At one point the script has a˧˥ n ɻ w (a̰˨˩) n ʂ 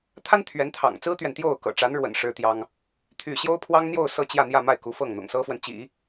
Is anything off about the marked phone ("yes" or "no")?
yes